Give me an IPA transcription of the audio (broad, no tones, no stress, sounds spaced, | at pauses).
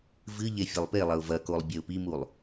v ɨ ʎ e fʲ ɐ lˠ p e lˠ ɐ ʊ̯ v ɐ k o lˠ bʲ e ʊ̯ p i m u lˠ